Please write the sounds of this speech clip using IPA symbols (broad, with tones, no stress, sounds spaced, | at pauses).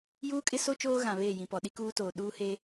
j uː˦ kʼ ɪ˦ s o˦ t͡ʃ oː˦ ɣ ã˨ β eː˦˨ j ĩ˨ p ɔ˨ ɗ i˦ k uː˦ t oː˨ ɗ uː˦ h e˦